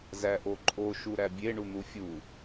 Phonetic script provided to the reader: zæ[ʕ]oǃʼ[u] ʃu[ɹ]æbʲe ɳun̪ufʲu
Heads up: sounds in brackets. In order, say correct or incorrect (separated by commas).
incorrect, incorrect, incorrect